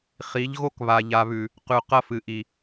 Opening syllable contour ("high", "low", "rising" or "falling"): rising